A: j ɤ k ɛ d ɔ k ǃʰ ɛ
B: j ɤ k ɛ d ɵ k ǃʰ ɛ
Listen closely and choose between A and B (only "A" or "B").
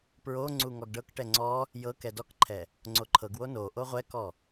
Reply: A